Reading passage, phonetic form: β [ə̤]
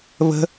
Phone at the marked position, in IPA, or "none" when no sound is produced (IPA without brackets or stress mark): ə̤